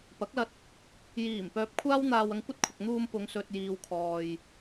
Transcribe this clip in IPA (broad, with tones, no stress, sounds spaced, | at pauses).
p ɐ˨˥ k̚ l ɐ˧ t̚ | j iː˨˩ m p œː˨ p̚ kʷʰ aː˥ w n̪ aː˧ w ɐ˧ ŋ kʷ ɐ˥ t̚ kʷʰ ɐ˨ k̚ n̪ uː˧ m p ʊ˨˧ ŋ s ɵ˨ t̚ j iː˨ w kʰ ɔː˧ j